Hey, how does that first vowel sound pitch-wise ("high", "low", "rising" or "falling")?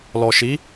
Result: low